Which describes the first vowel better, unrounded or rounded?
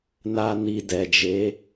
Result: unrounded